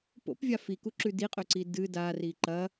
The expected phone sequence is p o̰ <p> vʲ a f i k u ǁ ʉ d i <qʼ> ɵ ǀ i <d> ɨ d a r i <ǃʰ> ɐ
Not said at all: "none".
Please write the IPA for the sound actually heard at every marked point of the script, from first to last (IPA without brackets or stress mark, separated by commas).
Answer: p, qʼ, d, ǃ